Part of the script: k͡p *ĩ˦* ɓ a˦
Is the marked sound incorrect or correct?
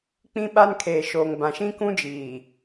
correct